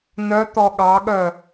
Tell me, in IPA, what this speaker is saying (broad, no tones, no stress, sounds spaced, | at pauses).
n œ t̪ ɔ ɠ ɑ ɠ œ